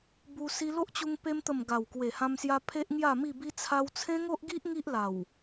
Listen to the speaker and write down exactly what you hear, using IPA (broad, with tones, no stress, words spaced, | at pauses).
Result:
bu˧ si˧ lo˦ʔt͡ɕu˧ŋ pe˧mt̪ə˨˩m ɡa˨˩wkwe˨˩hã˧msja˧ pʰe˦ʔŋja˥˧mi˥˧bi˦ t͡sʰa˧wt͡sʰẽ˦ŋo˦ʔɡi˦ʔ ŋi˦ʔla˨˩w